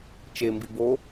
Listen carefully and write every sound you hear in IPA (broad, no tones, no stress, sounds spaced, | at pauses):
t͡ʃ e m b i b o